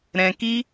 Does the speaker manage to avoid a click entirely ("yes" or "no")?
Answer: yes